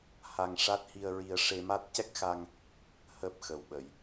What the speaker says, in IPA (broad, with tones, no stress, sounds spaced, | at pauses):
h a˧ ŋ ʂ a˦˥ t̚ h i˧ ə̯ ɹ i˧ ə̯ ʂ e˧ m a˦˥ t̚ c ɛ˦˥ k̚ x a˧ ŋ | h əː˦˥ p̚ x ə˨˩ w ɓ ə˨˩˨ j